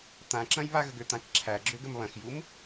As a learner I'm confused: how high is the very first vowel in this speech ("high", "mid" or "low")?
low